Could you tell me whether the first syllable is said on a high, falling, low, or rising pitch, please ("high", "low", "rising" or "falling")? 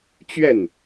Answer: falling